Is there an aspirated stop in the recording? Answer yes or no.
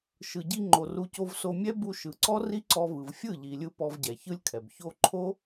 yes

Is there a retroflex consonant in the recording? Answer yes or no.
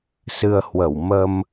no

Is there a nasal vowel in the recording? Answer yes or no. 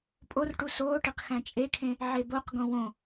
yes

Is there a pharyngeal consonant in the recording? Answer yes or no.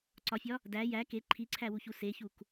no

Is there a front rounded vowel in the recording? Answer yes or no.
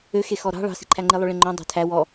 yes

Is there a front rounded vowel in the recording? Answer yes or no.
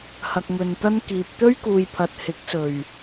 no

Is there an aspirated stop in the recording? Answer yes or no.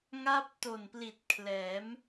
yes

